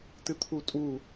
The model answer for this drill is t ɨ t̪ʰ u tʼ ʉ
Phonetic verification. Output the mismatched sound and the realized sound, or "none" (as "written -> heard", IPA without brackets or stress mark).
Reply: ʉ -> u